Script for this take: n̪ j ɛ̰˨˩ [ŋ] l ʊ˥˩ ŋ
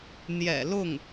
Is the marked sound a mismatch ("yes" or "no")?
yes